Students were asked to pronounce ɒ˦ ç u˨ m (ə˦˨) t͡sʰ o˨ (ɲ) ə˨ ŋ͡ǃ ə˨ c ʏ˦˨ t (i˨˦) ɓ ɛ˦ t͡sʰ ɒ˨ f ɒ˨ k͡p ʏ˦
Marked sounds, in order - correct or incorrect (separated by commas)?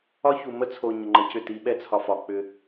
incorrect, correct, correct